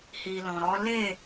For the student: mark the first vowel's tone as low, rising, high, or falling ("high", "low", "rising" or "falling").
low